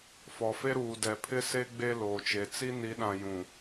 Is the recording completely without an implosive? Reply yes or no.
no